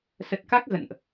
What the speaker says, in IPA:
s ə˨˩ t̚ k a˦˥ k̚ ɣ ə̰˧˨ n ʔ

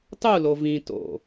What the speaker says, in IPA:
tˤ u l o v ĩ t o̰

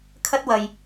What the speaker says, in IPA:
kʰ ɐ˥ t̚ w ɐ˧ j

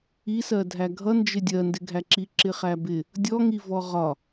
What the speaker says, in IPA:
i s ɜ dʱ æ ɡʱ ʌ n d͡ʒ ɪ dʲ ɜ n d ɪ ɡʱ æ ǁ i ǁ ɪ χ æ b ɪ | dʲ ɔ ŋ i v ɔ ʁ ɒ

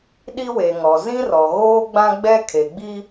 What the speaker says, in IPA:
ɗ i˦ w e˨ ŋ ɔ˨ z ĩ˦ r ɔ˨ ɣ oː˦ ɡ͡b ã˦ ɡ͡b ɛ˦ kʰ e˨ ɡ͡b i˦

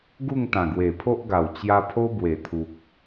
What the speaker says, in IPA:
ɡ u˥˧ ŋ t̪ ã˨˩ ɡ w e˨˩ pʰ o˦ ʔ ɡ a˨˩ w t͡ɕ j a˧ pʰ o˦ b w e˨˩ t̪ʰ u˨ k̚

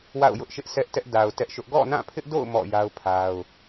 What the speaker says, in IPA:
w a̰˦˨ ʊ̯ j ʊ˦ ʔ ʃ ɪ˦ ʔ s ɛ˦ ʔ t ɛ˦ ʔ d a˨ ʊ̯ t ɛ˦ ʔ ʃ ʊ˦ ʔ ɡ ɔ̰˦˨ n ã˦˨ pʰ ɪ˦ ʔ d o̰˦˨ ʊ̯ m ɔ̰˦˨ j a˦ ʊ̯ pʰ a˦ ʊ̯

